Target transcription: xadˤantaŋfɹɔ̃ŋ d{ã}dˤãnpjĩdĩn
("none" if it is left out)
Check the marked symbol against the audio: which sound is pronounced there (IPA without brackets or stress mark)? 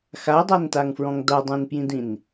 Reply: a